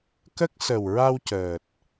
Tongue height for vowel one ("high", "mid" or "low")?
mid